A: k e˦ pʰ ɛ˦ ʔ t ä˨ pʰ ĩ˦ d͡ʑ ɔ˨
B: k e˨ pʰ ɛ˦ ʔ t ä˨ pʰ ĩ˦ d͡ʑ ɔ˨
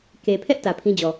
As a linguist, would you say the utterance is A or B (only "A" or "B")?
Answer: B